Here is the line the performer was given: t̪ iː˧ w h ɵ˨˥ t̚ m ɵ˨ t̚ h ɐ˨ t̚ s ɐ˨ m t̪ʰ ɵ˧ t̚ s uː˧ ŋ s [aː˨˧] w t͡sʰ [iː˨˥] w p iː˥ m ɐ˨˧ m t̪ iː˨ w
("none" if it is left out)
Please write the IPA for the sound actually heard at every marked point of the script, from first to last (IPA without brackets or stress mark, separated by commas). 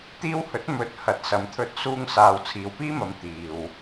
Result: aː˨, iː˨